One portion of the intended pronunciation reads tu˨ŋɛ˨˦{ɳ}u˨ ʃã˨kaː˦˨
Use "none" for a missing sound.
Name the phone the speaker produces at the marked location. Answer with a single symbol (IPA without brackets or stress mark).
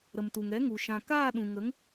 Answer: ŋ